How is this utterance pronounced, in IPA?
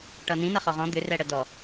ʈʌnĩ nʌχɔʁɔ̃ d̪ʏrɛ ɽədɔ

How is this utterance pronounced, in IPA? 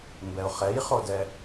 mbɛʊ̯χɛjχodɛ

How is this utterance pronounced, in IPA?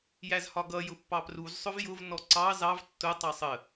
jæzhɒɡʌ jʊpːɑpruz sˤʊvjʊv nɔǀɑ zɑv tːʊ tˤɑsˤə

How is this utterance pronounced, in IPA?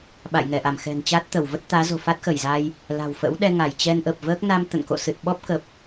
ɓa̰˧˨jŋɛ˧˩ʔa˧˩mxɛ̤˨˩n t͡ɕa˦˥t̚t̪ə˧˩wvə˦˥t̚ t̪aː˨˦zo̤˨˩ fa˦˥t̚xə˧˩jza˧j | la̤˨˩wfə̰˧˥w ɗɛ˧ŋa˧˩jt͡ɕɛ˧nʔə˨˩p̚ vəː˦˥k̚ na˧m t̪ə̰˧˨nko̰˧˨ sɨ˨˩t̚ɓɔ˦˥p̚kə˨˩p̚

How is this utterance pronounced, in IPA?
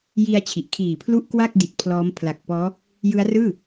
ji˧a̯ t͡ɕʰi˨˩ʔ kʰiː˨˩pʰlu˥˩ʔ kwa˥˩k̚ di˨˩t̚pʰlɔː˦˥m pʰla˨˩k̚pɔː˦˥ | jɯ˦˥a̯rɯː˥˩

